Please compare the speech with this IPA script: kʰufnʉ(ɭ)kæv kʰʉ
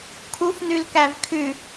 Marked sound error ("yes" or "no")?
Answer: yes